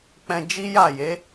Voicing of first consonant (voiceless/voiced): voiceless